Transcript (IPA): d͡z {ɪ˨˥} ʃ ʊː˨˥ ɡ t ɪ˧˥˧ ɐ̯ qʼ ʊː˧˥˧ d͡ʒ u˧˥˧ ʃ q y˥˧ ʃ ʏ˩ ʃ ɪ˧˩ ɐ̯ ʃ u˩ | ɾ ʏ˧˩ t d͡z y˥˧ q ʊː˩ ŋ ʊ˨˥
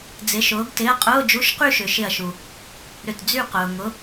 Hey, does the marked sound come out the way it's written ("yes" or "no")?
yes